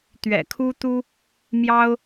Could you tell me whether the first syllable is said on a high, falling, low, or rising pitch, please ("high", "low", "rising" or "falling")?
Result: low